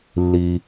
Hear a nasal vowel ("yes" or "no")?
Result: no